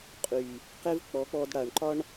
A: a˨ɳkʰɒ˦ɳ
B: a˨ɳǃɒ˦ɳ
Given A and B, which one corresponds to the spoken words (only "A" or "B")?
B